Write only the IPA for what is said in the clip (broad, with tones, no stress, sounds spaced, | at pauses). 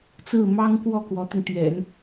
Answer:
t͡s ɹ̩˥˩ m ɑ˥ ŋ k w ɔ˥˩ k w ɔ˧˥ t̪ ʊ˧ ŋ t̪ ɥ ɛ̰˨˩˦ n